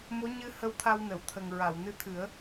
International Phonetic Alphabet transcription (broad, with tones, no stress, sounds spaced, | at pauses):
m o˧˥ ɲ ɨ˧ h ə˧ w t̪ʰ a˧ w n ə˨˩˨ w t̪ʰ ə˨˩ ŋ ɹ a˨˩˨ w n ɨ˧ t̪ʰ ɨ˨˩˦ ə̯